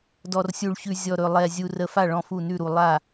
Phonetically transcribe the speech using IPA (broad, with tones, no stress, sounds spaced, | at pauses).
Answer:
d ɔ˨˩ r sʲ u˨˩ ɭ ç ʉ˨˩ zʲ ɔ˨˩ ɾ ɵ˨˩ lˠ ɛ˨˩ zʲ u˨˩ r ə˨˩ f a˥˩ ɭ ɔ̃˥˩ f u˥˩ n ʉ˥˩ ɾ u˨˩ lˠ a˥˩